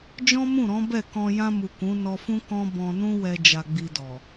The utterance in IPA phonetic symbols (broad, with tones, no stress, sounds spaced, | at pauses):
d͡ʒ ɔ̃˦ m ũ˦˨ ɾ ɔ̃˨˦ b ɛ˦˨ k ɔ̃˧ j ã˧ m u˨ k ũ˨˦ n ɔ˧ f ũ˦ k ɔ̃˦ b ɔ̃˧ n ũ˦ w ɛ˧ d͡ʒ a˧ ɡ͡b i˧ d ɔ˨